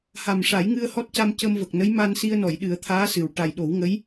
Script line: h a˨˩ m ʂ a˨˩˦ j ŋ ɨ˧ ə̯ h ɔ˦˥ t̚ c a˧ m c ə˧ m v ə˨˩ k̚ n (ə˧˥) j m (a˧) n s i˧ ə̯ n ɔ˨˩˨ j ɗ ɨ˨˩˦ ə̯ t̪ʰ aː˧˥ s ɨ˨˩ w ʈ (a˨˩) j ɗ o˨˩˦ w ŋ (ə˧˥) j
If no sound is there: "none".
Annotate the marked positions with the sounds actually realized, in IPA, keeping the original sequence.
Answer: ə˧˥, a˧, a˨˩, ə˧˥

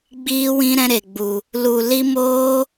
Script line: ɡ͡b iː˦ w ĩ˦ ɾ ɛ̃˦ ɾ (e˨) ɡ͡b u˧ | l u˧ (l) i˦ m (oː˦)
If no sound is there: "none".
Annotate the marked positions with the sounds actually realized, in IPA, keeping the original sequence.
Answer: e˧, l, oː˦

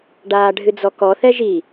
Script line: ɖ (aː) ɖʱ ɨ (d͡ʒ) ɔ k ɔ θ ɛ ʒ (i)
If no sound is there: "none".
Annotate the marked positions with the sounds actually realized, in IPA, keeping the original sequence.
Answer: aː, d͡z, i

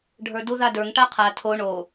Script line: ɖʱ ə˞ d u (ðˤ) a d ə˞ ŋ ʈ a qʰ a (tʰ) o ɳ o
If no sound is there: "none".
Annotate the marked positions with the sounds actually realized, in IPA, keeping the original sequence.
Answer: ð, tʰ

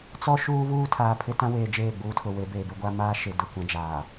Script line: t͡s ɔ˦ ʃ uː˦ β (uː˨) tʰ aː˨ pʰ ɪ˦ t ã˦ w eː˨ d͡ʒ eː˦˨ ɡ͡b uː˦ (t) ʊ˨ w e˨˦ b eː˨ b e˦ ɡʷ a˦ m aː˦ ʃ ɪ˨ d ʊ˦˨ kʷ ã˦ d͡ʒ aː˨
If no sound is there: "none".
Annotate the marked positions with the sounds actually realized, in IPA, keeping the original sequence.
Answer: uː˦, tʰ

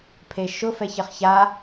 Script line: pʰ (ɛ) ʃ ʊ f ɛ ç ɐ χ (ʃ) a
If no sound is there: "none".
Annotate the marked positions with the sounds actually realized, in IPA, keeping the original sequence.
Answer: e, ç

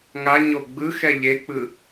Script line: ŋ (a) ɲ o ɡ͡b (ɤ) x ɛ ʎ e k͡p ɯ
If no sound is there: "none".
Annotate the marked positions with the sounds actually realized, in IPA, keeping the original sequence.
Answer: a, ɯ

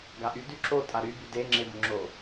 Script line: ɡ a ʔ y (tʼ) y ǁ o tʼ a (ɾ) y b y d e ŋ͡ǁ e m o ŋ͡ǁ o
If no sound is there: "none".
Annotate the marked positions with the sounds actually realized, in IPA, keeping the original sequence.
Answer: d, ɾ

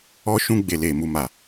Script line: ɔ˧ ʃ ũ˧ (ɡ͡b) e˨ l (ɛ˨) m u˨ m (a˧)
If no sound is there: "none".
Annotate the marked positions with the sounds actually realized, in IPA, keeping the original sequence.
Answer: ɡ͡b, e˨, a˨

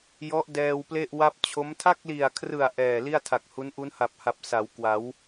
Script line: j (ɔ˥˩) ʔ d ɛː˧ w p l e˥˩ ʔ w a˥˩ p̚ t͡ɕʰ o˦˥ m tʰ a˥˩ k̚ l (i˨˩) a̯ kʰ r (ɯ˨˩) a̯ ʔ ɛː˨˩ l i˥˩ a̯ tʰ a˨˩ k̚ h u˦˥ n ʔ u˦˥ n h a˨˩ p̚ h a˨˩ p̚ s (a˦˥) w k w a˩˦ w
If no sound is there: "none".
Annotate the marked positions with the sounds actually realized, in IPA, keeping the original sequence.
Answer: ɔ˦˥, i˨˩, ɯ˨˩, a˩˦

